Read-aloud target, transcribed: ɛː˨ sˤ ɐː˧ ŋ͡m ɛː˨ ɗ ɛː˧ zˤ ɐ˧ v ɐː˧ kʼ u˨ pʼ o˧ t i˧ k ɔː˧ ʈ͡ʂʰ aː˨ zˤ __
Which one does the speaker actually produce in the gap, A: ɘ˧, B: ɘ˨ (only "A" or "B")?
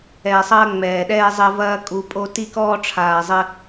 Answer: A